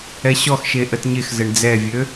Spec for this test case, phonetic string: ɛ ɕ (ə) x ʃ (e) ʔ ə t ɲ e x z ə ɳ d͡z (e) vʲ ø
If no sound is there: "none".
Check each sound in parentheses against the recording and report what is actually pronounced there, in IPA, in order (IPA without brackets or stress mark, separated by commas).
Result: ɔ, e, ɛ